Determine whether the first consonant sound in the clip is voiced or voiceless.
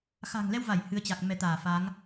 voiceless